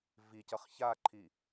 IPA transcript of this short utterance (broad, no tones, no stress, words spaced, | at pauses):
vicʌχ çaǃʰi